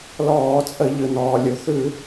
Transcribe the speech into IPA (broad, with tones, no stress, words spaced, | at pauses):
lɔː˧˩˧t͡sʼə˧˩˧ʎɯ˩ nɔː˩lʲu˩θʉ˧˩˧